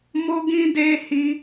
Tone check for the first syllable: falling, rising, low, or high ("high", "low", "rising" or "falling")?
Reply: high